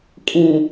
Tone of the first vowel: low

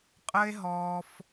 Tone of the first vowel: high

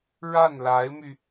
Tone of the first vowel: falling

